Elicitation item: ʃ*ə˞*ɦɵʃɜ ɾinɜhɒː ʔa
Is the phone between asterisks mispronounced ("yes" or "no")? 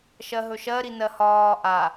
yes